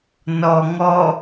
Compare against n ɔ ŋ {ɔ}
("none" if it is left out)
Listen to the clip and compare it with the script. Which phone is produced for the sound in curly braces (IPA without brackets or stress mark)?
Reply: ɔ